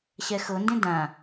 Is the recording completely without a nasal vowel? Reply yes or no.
no